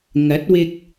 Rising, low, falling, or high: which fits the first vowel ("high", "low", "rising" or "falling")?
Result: rising